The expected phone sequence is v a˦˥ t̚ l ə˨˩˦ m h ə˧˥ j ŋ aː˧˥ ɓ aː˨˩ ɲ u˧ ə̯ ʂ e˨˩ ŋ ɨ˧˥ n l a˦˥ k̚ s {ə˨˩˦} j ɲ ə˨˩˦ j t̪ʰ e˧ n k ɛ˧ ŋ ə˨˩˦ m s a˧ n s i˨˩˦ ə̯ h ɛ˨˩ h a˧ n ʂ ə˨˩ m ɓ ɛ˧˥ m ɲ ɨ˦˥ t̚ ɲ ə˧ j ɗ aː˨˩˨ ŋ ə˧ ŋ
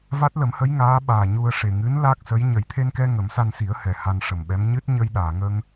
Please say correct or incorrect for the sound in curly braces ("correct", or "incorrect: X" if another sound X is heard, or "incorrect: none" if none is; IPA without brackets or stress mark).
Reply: incorrect: ə˧˥